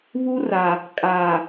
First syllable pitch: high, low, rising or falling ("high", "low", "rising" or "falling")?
high